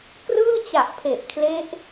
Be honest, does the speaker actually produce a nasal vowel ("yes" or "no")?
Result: no